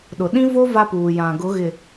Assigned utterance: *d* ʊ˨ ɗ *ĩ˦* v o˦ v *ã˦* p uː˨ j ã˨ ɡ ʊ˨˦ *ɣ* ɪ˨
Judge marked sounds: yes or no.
no, yes, no, yes

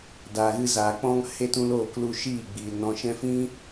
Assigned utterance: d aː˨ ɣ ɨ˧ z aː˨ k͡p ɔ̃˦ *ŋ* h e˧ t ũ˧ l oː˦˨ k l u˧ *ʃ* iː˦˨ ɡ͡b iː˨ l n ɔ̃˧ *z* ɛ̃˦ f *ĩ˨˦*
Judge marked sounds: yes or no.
yes, yes, no, no

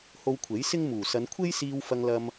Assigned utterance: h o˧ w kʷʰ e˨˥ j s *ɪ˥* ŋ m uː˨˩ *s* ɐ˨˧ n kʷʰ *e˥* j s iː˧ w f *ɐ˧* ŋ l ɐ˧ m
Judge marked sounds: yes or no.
yes, yes, yes, yes

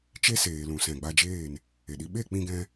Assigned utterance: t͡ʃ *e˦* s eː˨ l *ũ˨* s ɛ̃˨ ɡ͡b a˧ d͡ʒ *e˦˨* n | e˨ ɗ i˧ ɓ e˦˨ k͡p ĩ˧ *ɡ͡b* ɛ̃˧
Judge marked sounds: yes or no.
yes, yes, no, no

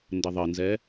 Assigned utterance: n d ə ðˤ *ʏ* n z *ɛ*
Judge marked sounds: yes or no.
no, yes

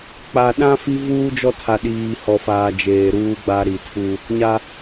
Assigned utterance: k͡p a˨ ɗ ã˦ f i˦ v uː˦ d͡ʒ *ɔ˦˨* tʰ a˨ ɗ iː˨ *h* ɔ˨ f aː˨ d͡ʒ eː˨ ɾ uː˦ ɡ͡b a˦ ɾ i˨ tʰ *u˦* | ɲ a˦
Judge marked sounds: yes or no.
no, yes, yes

